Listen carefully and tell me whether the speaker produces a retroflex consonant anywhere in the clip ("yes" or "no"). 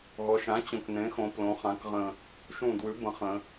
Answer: no